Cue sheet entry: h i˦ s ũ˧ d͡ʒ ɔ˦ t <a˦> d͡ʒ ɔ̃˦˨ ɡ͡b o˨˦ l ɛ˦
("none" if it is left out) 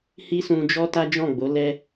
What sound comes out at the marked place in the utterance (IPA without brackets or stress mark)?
a˦